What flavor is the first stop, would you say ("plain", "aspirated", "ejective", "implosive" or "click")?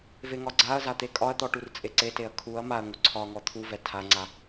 click